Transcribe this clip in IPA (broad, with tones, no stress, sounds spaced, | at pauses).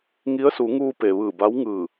ŋ i˧˥ ə̯ s u˩˧ ŋ uː˧ p e˩ ʋ ɯː˧˩ b a˧˥ w ŋ ɯː˧˩